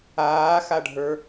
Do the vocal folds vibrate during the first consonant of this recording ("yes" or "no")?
no